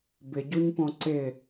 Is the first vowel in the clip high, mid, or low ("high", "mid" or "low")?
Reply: high